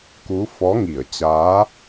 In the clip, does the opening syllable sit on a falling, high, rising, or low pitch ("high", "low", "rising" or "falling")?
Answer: rising